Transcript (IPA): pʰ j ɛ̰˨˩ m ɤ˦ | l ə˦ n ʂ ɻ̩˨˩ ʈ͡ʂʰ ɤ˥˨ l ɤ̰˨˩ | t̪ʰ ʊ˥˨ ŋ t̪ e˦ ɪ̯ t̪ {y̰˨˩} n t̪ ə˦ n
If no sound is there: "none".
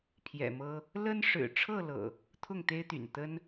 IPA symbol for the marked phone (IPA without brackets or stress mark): y̰˨˩